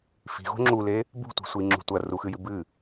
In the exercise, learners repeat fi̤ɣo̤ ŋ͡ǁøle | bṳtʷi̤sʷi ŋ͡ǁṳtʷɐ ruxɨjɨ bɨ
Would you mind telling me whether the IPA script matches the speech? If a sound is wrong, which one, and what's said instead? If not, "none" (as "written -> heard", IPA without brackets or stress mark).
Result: ø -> u